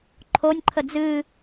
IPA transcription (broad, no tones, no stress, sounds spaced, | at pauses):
ǃʰ o nʲ ǃʰ ə d͡z ɨ